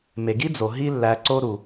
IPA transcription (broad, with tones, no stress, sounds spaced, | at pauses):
m e˩ ɡ i˥ d͡z o˩ ɦ i˦ lː æ˨ ǀ o˦ ɾ u˩